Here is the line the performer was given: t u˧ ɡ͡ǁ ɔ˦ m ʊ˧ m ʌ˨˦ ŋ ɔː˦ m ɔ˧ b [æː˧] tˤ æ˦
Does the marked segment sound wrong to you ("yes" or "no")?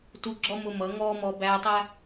no